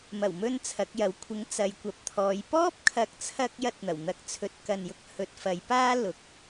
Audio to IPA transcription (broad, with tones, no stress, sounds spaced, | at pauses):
m ɐ˨˩ w m ɵ˧ n t͡sʰ ɐ˨˥ k̚ j ɐ˨˥ w kʷʰ ɪ˨˥ ŋ t͡s ɐ˨˧ j kʷ ɐ˨˥ p̚ t̪ʰ ɔː˨˧ j p ɔː˥ p̚ kʰ ɐ˨˥ k̚ t͡sʰ ɐ˧ k̚ j ɐ˥ t̚ n̪ ɐ˨˩ w n̪ ɐ˧ k̚ t͡sʰ ɵ˧ t̚ k ɐ˨ n j ʊ˧ k̚ h ɵ˨˥ t̚ f ɐ˨˥ j p aː˥ l ʊ˨˥ k̚